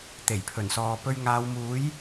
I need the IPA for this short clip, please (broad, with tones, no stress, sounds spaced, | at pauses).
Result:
t̪ e˨˩ j pʰ ɵ˨˩ n s ɔː˨ p ɵ˧ ɥ ŋ aː˨˧ w m uː˨˥ j